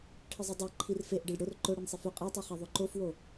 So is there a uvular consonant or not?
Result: yes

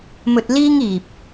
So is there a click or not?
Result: no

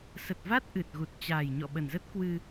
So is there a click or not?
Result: no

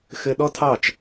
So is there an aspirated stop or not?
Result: yes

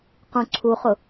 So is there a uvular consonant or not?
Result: yes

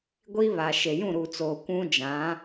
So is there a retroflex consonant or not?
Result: no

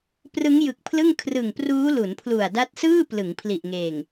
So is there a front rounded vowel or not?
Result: no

